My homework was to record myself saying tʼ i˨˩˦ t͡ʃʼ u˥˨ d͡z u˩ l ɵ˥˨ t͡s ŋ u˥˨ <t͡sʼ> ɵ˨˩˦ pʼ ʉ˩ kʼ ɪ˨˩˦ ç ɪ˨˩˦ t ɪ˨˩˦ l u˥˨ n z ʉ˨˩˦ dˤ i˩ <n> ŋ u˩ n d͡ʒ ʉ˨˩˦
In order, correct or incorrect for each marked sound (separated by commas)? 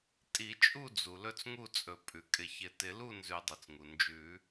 correct, incorrect